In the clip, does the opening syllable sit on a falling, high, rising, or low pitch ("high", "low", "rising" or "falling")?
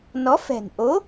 rising